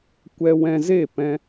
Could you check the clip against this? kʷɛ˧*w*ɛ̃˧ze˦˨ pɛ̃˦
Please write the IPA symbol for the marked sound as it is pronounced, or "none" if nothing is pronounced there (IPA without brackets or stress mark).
w